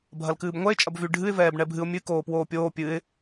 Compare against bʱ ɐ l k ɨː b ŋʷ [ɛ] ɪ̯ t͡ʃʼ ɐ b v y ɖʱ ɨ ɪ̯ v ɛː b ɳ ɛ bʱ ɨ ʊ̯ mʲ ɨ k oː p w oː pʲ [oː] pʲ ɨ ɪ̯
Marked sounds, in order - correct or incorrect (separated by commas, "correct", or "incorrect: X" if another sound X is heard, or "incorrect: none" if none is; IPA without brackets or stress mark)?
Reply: correct, correct